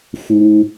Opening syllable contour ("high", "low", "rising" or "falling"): high